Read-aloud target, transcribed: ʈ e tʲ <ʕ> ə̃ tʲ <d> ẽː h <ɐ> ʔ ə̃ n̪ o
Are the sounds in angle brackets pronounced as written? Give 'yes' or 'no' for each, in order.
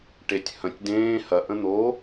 no, yes, yes

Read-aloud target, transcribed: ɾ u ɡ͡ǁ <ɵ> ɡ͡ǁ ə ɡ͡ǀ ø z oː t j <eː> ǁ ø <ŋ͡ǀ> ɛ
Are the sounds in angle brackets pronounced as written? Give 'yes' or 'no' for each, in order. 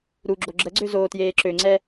no, yes, yes

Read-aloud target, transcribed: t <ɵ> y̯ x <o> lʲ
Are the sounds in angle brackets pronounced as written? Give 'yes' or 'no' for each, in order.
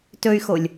yes, yes

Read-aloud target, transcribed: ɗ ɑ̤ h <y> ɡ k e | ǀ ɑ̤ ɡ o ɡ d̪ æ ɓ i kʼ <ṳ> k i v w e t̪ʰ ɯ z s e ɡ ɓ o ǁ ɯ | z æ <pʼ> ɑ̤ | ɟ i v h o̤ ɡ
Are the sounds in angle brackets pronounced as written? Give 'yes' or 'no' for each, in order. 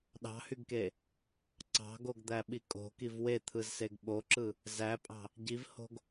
yes, no, yes

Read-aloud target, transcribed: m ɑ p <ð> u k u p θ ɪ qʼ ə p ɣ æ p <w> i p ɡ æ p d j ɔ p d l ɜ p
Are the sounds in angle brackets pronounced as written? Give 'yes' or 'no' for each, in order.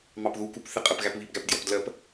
yes, no

